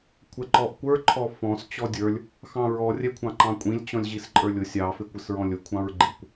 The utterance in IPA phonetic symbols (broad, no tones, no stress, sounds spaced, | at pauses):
kʷʰ ɛ ǃ ɔ ʔ kʷ ə˞ ǃʰ ɔ f ɔ̃ s t͡ɕ ɔ dʲ ə˞ lʲ | x ɑ̃ ɹ ɔ rʲ ɛ kʷʰ ɑ̃ ǃ ɑ̃ kʷʼ ĩ lʲ t͡ɕ ɔ̃ lʲ ʑ i s ǃʼ ə˞ lʲ ʊ sʲ ɑ f ɪ kʷ ɪ s ɹ ɔ̃ lʲ ʊ kʷʰ ɑ̃ ɹ ɡ͡ǃ i kʷ